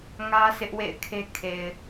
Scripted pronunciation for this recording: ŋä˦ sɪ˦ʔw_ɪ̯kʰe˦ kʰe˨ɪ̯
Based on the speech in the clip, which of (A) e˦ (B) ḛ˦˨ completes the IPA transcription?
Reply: B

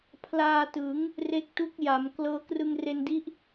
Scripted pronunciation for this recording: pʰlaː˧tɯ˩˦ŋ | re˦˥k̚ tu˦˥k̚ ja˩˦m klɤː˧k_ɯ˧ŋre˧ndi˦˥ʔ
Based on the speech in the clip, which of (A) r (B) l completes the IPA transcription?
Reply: A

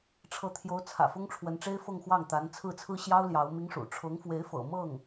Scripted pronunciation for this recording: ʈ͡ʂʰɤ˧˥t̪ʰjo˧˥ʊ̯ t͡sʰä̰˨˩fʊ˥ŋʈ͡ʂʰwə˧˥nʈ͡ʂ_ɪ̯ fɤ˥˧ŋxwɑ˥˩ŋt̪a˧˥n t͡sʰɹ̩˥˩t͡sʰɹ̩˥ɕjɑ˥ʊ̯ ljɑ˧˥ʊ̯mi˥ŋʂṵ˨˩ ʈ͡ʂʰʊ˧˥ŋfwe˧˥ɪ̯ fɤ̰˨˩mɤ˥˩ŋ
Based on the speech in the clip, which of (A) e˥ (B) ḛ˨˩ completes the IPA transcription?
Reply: A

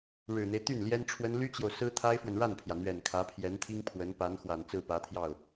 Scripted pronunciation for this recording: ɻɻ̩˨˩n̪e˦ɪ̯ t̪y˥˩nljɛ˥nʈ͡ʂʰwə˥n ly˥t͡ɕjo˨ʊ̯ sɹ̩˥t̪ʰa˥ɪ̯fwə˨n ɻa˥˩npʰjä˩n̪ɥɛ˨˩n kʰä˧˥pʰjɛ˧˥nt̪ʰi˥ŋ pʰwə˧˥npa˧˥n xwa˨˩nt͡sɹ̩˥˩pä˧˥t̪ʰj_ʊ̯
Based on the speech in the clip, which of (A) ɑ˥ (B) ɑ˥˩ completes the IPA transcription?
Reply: B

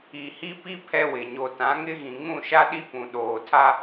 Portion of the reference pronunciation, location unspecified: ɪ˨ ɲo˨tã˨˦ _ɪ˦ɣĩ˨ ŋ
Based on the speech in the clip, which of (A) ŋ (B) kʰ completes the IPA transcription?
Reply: A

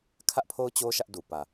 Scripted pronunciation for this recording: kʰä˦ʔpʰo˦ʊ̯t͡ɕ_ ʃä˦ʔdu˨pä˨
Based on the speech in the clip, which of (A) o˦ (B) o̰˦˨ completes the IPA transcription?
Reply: A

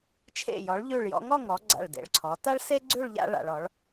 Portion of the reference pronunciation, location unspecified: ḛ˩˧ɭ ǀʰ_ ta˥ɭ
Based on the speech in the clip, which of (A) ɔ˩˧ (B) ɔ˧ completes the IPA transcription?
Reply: A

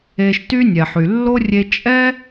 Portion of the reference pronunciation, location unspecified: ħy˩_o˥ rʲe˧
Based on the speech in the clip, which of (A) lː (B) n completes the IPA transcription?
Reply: A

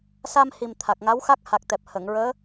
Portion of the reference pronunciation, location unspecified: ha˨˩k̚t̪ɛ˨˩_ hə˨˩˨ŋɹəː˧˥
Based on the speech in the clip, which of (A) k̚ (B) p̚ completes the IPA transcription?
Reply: B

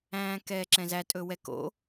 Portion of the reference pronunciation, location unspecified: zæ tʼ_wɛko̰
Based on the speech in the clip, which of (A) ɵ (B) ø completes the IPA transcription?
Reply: A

